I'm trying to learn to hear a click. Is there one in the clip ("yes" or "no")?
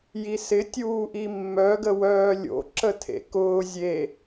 yes